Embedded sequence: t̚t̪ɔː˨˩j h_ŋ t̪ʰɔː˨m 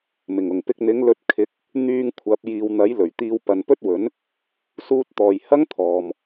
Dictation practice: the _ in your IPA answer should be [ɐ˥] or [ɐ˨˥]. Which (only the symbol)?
ɐ˥